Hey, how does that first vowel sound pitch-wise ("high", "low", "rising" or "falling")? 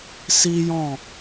high